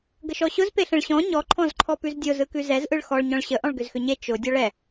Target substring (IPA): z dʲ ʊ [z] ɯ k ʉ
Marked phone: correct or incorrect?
correct